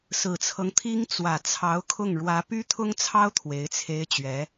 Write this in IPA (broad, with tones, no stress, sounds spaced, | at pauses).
s ɹ̩˨˩ t͡sʰ ɤ˦ ŋ t̪ʰ i˥ ŋ t͡s w ä˨˩ t͡sʰ ɑ˧˥ ʊ̯ kʰ ʊ˥˩ ŋ ɻ w ä˧˥ p y˥ t̪ʰ ʊ˥ ŋ t͡sʰ ɑ˥ ʊ̯ t̪ʰ w e˧˥ ɪ̯ t͡sʰ e˥ ɪ̯ t͡ɕ ɥ ɛ˧˥